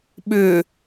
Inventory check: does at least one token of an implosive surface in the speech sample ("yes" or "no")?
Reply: yes